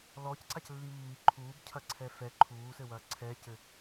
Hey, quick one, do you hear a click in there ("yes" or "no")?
yes